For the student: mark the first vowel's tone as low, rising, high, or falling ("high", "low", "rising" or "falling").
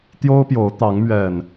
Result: high